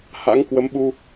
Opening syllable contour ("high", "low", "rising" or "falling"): rising